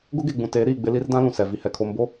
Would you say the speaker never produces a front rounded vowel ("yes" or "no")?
yes